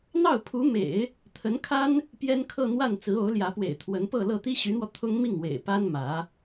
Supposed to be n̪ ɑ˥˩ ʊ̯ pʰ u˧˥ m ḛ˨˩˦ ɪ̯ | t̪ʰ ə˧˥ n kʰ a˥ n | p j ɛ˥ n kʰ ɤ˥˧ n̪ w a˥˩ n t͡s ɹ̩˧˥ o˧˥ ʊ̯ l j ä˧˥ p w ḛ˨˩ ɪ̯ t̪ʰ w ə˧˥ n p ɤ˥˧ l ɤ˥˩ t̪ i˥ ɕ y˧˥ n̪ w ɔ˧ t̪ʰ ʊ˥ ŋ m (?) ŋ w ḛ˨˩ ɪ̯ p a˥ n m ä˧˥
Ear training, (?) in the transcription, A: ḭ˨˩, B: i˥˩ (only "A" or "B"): B